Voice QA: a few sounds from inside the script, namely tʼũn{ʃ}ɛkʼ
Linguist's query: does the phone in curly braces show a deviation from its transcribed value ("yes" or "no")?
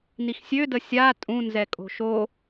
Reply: yes